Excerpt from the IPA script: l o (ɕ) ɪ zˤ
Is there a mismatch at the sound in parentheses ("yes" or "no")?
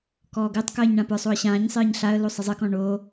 yes